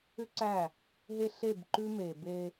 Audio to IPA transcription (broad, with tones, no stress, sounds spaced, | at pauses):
ʏ˦ ǀ æ˦˨ | ɦ e˦ ɬ e˦˨ b ǃ ʉ˦ m e˨ b e˦